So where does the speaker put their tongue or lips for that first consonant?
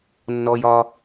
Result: tongue tip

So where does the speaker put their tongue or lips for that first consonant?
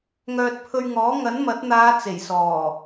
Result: velum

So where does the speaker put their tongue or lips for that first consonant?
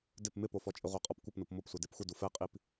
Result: tongue tip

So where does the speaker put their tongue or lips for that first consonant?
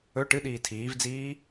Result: retroflex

